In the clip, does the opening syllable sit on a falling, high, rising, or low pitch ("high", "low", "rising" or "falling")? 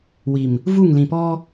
low